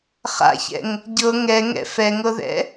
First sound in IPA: χ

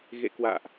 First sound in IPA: ɣ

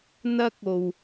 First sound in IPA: n̪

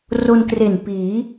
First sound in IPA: r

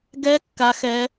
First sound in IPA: ɡ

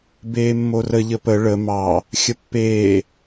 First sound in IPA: b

